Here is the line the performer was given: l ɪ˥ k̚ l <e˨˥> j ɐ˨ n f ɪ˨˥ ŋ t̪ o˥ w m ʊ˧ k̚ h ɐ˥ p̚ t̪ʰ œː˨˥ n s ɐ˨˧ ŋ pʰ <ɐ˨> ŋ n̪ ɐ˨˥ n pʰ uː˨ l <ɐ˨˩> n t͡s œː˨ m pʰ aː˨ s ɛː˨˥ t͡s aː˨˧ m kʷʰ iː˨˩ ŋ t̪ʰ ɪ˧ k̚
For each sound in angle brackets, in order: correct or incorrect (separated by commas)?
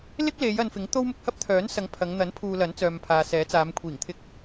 incorrect, incorrect, incorrect